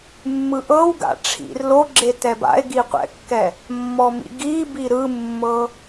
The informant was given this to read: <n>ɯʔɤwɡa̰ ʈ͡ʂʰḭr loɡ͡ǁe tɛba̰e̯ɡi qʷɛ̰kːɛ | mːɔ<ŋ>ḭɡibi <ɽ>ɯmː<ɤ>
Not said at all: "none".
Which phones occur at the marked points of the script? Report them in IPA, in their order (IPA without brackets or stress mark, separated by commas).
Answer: mː, m, ɾ, ɤ